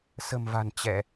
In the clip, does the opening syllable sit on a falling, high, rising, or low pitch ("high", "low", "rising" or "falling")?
low